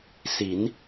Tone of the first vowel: rising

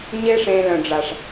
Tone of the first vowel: high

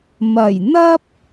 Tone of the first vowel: low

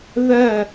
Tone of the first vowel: falling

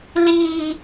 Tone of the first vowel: high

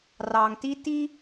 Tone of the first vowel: low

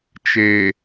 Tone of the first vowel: low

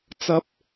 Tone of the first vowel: high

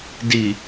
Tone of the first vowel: low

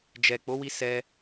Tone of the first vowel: low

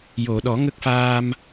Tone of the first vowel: low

